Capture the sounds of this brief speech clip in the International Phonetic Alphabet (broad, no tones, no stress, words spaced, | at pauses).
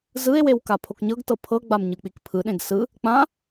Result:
zɯe̯wew kapʰokɲɤɡtɤ pʰɤɡ͡bam ɲɯk͡pikpʰɯɗẽɡ sɯ | k͡pã